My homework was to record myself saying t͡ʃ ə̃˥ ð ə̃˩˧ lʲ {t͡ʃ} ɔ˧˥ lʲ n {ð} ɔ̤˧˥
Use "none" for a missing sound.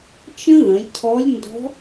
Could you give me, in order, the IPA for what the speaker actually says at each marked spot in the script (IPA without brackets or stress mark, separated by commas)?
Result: cʰ, d